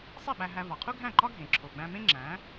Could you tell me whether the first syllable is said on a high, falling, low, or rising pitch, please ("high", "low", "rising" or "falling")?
falling